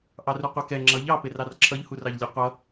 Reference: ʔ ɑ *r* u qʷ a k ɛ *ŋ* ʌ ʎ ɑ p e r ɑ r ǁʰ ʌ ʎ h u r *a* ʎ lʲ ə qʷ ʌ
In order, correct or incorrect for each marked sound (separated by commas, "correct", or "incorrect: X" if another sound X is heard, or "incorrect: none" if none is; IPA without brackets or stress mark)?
correct, incorrect: ŋ͡ǁ, incorrect: ɑ